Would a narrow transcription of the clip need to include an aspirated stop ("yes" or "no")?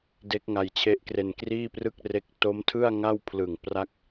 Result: yes